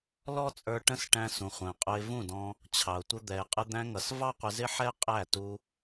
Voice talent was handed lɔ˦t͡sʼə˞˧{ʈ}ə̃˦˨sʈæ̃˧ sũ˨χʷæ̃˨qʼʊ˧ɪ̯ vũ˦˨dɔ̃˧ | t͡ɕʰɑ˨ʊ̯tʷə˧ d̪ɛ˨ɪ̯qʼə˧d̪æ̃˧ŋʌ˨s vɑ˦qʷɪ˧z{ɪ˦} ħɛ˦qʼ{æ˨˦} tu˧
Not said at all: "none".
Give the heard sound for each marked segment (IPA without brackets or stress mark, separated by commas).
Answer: ʈ, ɪ˦, æ˦˨